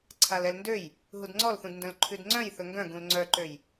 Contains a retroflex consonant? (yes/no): no